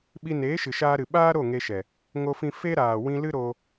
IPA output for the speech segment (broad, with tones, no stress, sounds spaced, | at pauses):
ɓ i˧ n eː˨˦ ʃ ɨ˨ ʃ aː˧ ɾ ɨ˨ ɓ aː˦ ɾ o˦˨ ŋ e˧ ʃ ɛ˨ | ŋ o˧ f ĩ˧ f e˦ ɾ aː˨ w ĩ˧ l ɨ˦ ɾ o˧